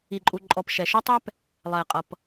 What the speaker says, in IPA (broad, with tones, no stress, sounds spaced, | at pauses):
i˨ ǃʼ u˨ ǃʼ ɔ˨ p ʃ ɛ˨ ʃ ʊ˦ tˤ ɛ˦ p | lˠ ɛ˨ qʼ ʌ˨ p